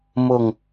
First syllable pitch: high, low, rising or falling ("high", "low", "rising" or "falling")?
falling